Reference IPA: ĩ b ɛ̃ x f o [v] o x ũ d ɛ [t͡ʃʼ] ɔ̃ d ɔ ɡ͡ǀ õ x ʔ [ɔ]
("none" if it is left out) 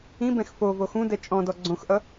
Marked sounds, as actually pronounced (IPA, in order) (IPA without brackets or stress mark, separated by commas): v, t͡ʃʼ, ʌ